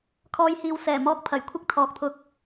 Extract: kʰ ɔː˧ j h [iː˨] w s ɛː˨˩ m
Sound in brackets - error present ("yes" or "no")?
no